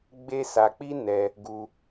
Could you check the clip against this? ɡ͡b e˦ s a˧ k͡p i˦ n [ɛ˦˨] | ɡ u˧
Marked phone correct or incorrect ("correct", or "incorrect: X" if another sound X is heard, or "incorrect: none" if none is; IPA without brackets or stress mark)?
incorrect: ɛ˧